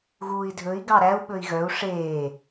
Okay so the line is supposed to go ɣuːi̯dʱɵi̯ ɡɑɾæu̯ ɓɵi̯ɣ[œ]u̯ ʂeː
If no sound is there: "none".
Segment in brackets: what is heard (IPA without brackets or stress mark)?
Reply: œ